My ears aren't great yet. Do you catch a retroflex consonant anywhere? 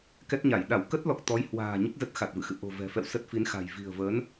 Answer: no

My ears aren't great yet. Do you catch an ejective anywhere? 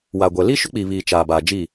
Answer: no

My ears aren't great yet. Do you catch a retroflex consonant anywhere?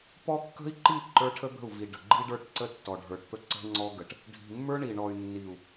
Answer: yes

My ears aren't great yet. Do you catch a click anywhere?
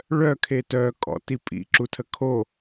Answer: yes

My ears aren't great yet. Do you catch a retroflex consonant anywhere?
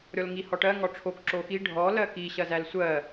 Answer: yes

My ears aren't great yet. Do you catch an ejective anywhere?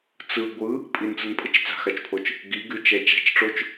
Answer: yes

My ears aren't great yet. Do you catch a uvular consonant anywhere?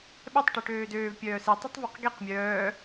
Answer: yes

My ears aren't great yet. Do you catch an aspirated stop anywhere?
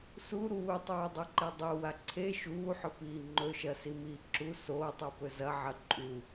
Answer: yes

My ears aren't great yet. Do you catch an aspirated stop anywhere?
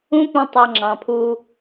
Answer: yes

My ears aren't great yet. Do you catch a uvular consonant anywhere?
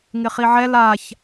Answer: yes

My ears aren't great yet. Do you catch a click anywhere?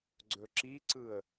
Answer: yes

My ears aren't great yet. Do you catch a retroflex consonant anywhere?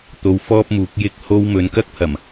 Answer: no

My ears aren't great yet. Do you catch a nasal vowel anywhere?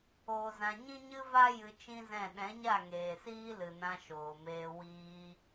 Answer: yes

